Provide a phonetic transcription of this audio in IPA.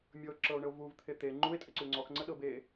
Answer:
mʲ ɤ ǁ ɤ o̯ ɳ ə o̯ v u v t̪ʰ e t̪ e ŋ͡ǃ u e̯ tʼ ə ǀ u ŋ͡ǀ ɔ x ŋ͡ǀ ə ɗ ɤ b e

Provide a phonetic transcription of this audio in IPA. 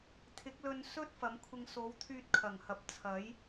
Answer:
t̪ʰ ɪ˨˥ k̚ l ɵ˧ n s ɵ˥ t̚ f ɐ˨˧ m kʷʰ ɪ˧ ŋ s o˨˧ w t̪ʰ yː˧ t̚ kʰ ɐ˨˩ ŋ h ɐ˨ p̚ t͡sʰ ɐ˨˥ j

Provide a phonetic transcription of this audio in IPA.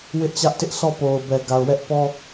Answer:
w ɪ˦ ʔ t͡ɕ ä˦ ʔ t ɪ˦ ʔ sʰ ɔ˦˨ p o˨ ʊ̯ b ɛ˨ ɡ a˨ ʊ̯ w ɛ˦ ʔ p ɔ˦

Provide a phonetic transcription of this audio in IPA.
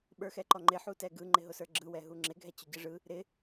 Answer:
ɓ ə˞ x ɛ ǃ ɔ ŋ͡ǃ ɪ ħ u t ɛ ɡ ɯ ŋ͡ǃ ɪ ɦ ʊ s ə˞ ɡ͡ǁ ɯ w ɛ ɦ u ŋ͡ǁ ɪ ɡʱ ɛ t͡ɕ ʊ ɟ ɯ ʐ ɯ | ɾ ɪ

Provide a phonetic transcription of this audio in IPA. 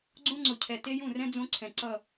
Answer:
ɡ͡ǀ ũ˦ ŋ͡ǀ ʊ˨ cʰ ɛ˨ t e˦ j ũ˦˨ r ɛ̃˦ d͡z õ˦ ǀʰ ɛ̃˨ ǀ ʌ˦˨

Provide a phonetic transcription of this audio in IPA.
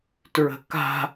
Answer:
t ɹ ə̤ k a̤

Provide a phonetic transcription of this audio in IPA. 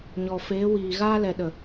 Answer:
ɲ ɔ˨ f eː˨˦ w iː˨ ɣ aː˧ l ɛ˨ ɗ ə˨

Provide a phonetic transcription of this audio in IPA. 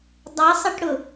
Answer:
dˤ æ sˤ ɪ ʈ ɽ ʊ

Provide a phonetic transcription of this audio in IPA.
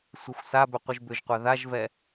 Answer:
sʷ ə xʷ s a b ʏ qʷ ɨ ʒ b ʏ ʒ qʷ a ð a ʒ v ɛ

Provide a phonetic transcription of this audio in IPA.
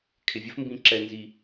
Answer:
kʰ ɪ˨ vʲ ə˦ f m b ĩ˨˦ ǁ ɛ˨ n z i˨

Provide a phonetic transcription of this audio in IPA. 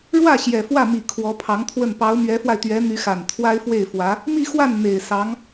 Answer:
ɻ w ä˥˩ ɕ j ɛ˨˩ f w ä˥˩ m i˨˩ kʰ w ɔ˧˥ pʰ ɑ˧˥ ŋ t̪ʰ w ə˥˩ n p ɑ˧˥ ʊ̯ m ɥ ɛ˧˥ f w a˧ ɪ̯ t̪ ɥ ɛ˧˥ n̪ y˧˥ x a˨˩ n t̪ʰ w a˥ ɪ̯ f w e˥˩ ɪ̯ f w ä˧˥ | m i˥˧ x w a˥˩ n n̪ e˨˩ ɪ̯ s ɑ˧˥ ŋ

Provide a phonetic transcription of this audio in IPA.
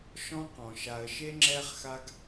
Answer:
ʃ ɔ̃˦ q ɔ̃˩ ʃ a˨ ə̯ ʃ e˥ ŋ͡ǁ ɛ˦ χ x a˦ ɡ

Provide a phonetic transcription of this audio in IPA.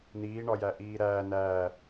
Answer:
n iː ɳ ɒ j æ ʔ iː ɾ æː n æː

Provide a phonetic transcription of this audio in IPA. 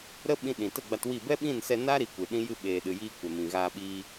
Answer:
ɾ ə˦ ɓ ĩ˧ ɗ ĩ˨ t ə˦˨ ɡ͡b a˧ t w i˦˨ b ɛ˦ ɓ ĩ˦˨ n s ɛ˧ n a˦ ɾ i˧ kʷ ɨ˨ ɗ ĩ˦ j ɨ˧ ɓ eː˨ ɗ ɨ˨ j iː˧ kʷ ɛ˨ m ĩ˨ ɣ a˧ ɓ iː˧

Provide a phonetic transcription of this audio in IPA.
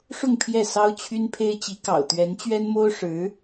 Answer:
ʂ ʊ˥˧ ŋ pʰ j ɛ˥˩ s ɑ˥ ʊ̯ t͡ɕʰ y˥ n pʰ e˥ ɪ̯ t͡ɕ i˧˥ k ɑ̰˨˩ ʊ̯ t̪ ɥ ɛ˧˥ n t͡ɕ ɥ ɛ˥ n m o˥ ʊ̯ ʂ ɻ̩˧˥

